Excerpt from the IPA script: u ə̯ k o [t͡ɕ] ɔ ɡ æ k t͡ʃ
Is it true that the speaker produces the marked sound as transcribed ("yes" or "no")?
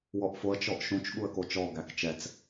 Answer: no